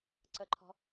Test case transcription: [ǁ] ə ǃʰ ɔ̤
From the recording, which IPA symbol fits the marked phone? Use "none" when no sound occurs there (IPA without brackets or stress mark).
ǀ